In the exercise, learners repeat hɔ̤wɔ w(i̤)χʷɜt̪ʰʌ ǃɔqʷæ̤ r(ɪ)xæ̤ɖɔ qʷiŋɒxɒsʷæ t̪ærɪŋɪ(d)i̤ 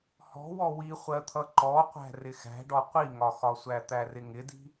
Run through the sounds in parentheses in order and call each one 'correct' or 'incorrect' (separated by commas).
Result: incorrect, correct, correct